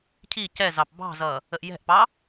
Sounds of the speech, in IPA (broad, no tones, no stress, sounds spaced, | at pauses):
cʰ i c ɛ z ɑ p b ɑ̤ z ʌ | ə ʔ j ɛ̤ ʔ p ɑ